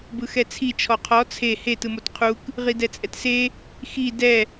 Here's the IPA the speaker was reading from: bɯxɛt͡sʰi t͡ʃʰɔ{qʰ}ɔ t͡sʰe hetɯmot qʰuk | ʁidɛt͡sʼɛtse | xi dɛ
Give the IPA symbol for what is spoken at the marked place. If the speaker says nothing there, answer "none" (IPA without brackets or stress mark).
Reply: qʰ